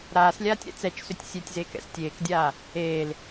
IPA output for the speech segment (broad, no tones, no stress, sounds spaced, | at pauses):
ɾ aː s lʲ aː tʲ ɾ ɛ̰ t͡s ɛ t͡ʃ s ʏ tʲ sʲ e tʲ z eː k ɛ̰ s tʲ eː k dʲ aː | eː l